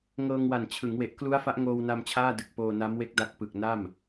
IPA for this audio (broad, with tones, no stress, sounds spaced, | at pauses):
ŋ ɤː˧ ŋ w a˨˩ n t͡ɕʰ ɯ˩˦ ŋ w e˨˩ ʔ k l u˦˥ a̯ f a˦˥ ʔ ŋ oː˧ w n a˧ m t͡ɕʰ aː˥˩ d ɯ˨˩ k̚ p oː˧ n a˦˥ m w e˦˥ k̚ d a˦˥ k̚ p ɯ˨˩ k̚ n a˥˩ m